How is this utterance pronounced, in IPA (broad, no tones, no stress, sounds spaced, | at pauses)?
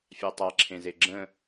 fʲ a tˤ a ǁʰ ẽ z e ɡ͡ǁ ə̃